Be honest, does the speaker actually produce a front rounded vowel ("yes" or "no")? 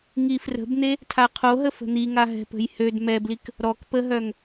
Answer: yes